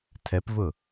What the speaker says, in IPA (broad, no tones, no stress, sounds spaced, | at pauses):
tʰ ɛ p v ʊ